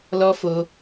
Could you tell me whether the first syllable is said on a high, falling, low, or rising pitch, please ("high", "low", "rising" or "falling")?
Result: high